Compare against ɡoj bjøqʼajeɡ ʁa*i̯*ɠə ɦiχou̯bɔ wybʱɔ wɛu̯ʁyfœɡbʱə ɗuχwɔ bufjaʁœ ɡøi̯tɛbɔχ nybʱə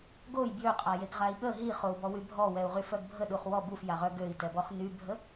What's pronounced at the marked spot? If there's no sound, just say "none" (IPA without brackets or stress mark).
i̯